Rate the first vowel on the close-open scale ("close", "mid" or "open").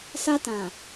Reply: open